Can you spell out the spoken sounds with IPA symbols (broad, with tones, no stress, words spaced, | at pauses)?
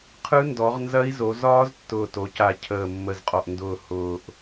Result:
qʰɯ˦˥ndɔ˩˧ʁnzɐ˦˥i̯zo˩˧ zɒː˦˥ztːʊː˨˩to˩˧ca˨˩ cʰəː˨˩ mːə˨˩zqʼɔ˨˩ʔndʊː˨˩ hʊː˨˩ʔ